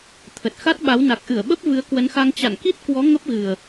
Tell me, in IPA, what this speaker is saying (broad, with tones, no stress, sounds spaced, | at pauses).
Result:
t̪ʰ ə˨˩ t̚ x a˦˥ t̚ ɓ a˨˦ w n a˨˩ k̚ ʔ ɨ˧˩ ə̯ ɓ ə˦˥ p̚ v ɨ˨˦ ə̯ k w ə˨˦ n x a˧ ŋ t͡ɕ a̰˧˨ n k i˦˥ t̚ k w ɔ˨˦ ŋ ə˦˥ p̚ ɣ ɨ˨˩ ə̯